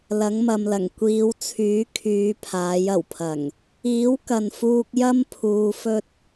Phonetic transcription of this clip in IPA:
lɐ˨˥ŋmɐ˨mlɐ˨˩ŋ kʷiː˨˧wt͡sʰyː˨˥kʰyː˨˧ pʰaː˨˥jɐ˨˩wpʰɐ˨˩ŋ | iː˨˥wkɐ˨n fuː˧k̚jɐ˥m pʰuː˧fɵ˥t̚

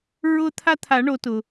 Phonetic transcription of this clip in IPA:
ɹʊ˦ t̪ʰa˦t̪ʰa˨˩˦ɳo˨˩˦ tʊ˩

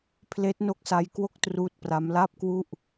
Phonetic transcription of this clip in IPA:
pʰleː˦˥t̚no˦˥k̚sa˦˥j kwo˥˩k̚truː˦˥t̚pra˦˥m la˥˩p̚kwu˥˩ʔ

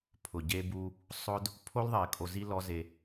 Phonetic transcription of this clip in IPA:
pʰʊ˨ɟe˧bu˧ | sˤʊ˧d | pʰo˧lðˤe˨ kʼo˧zi˦lɔ˦ ze˧

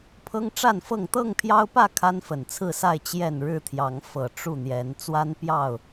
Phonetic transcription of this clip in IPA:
pʰɤ˦ŋʈ͡ʂa˥˨nfɤ˥˨ŋ t̪ɤ˥˨ŋpʰjɑ˦ʊ̯pä˥˨ kʰa˦nfə˨˩nt͡sʰɹ̩˥˨sa˥˨ɪ̯ t͡ɕjɛ˥˨n ɻɻ̩˥˨t̪ʰjɑ˨˦ŋ fɤ˨˩ ʈ͡ʂu˥˨n̪jɛ˨˦n t͡swa˦npjɑ˥˨ʊ̯

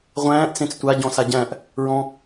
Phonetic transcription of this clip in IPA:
ʁʷæ̃ːʔ t͡sẽt͡stʷa ɟɔ̃saɟæ̃ʔ | ɹɔ̃

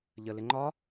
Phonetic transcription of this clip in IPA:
ʎəlɪ ŋ͡ǃɒ

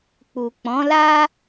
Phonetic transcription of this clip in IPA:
k͡pu˨k͡pɔ̃˨˦la˦

